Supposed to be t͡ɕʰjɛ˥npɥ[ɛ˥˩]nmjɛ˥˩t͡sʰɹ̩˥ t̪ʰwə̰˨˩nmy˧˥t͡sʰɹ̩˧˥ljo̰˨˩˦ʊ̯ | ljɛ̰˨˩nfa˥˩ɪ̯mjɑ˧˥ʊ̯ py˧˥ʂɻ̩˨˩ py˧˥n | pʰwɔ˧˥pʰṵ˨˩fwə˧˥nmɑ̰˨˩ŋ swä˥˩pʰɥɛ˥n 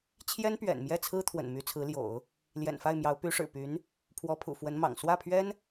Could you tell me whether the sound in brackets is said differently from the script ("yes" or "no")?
yes